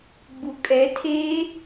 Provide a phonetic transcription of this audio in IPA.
ɡ͡b u kʼ ɛ tʰ eː

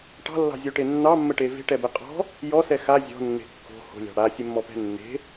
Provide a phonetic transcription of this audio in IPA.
ʈ ɑ̤ lː ɑ̤ zʲ o ʈ e nː ɑ mː ə ʈ e v e̤ ʈ ɛ b ɛ qʼ ɔ̤ | j ɔ s ɛ x a zʲ ɔ̤ nː e̤ kː o̤ h o̤ lʲ ɑ̤ ɽ a sʲ e mː ɔ p ɛ̤ nː e̤

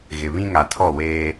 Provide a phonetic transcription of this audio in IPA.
ɣ ɪ˨ β ĩ˦ ŋ a˨ tʰ ɔ˦˨ w eː˦

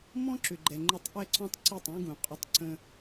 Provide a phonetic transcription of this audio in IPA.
m ɔ̃˦ ǁ ʏ˨ ɡ͡ǃ ɛ˨ ŋ͡ǃ ʏ˧ tˤ ʔ ɛ˦ ǀ ɔ̃˦ tˤ ǀ i˦˨ tˤ ũ˦ ɡ ũ˨ qʼ ʏ˧ tˤ ǀ ə̃˧

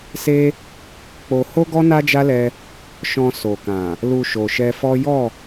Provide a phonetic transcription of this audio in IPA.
s e˦ | k͡p o˧ h o˦ ɡ ɔ˦ n a˦ d͡ʒ a˦ l ɛ˧ | ʃ ɔ̃˧ s o˨ k ã˨ | l u˧ ʃ o˨ ʃ ɛ˧ f ɔ˦ j ɔ˦˨

